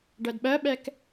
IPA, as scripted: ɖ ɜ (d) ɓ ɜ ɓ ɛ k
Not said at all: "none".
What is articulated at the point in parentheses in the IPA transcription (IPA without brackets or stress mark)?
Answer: d